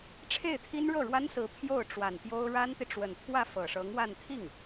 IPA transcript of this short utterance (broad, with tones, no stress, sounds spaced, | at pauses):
ʈ͡ʂʰ e˥˩ ɪ̯ t̪ʰ i˥ n ɻ ɤ˥˩ ɻ w a˥ n s ɹ̩˧˥ pʰ j o˥˩ ʊ̯ ʈ͡ʂ w a˨˩ n p j o˥ ʊ̯ ɻ a˥ n t̪ i˨ ʈ͡ʂ w ə˨˩ n t̪ʰ w ä˥˩ f ɤ˨˩ ʂ ɤ˧˥ ŋ w a˥˧ n t̪ʰ i˥˩ ŋ